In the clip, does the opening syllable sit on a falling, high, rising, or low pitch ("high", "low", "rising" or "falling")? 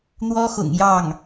high